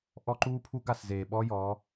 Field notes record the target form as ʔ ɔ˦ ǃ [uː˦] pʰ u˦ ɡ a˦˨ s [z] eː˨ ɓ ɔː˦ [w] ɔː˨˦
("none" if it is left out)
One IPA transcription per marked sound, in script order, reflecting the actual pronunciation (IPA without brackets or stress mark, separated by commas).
uː˦, z, j